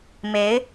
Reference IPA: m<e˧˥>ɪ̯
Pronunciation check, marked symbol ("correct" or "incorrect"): correct